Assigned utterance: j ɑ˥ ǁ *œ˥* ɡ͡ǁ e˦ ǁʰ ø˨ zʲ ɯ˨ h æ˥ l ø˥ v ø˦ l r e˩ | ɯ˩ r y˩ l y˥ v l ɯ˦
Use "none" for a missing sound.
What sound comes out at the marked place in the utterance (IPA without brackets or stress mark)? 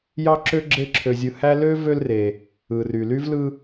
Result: ø˥